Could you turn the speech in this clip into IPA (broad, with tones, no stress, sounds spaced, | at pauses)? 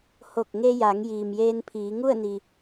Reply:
h o˧˩ k̚ ŋ e˧ j a˩˧ ŋ j iː˩ m j eː˧ n pʰ iː˩˧ ŋ u˥˨ ə̯ n i˩